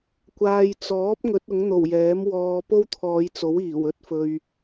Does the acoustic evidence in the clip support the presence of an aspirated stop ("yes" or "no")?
yes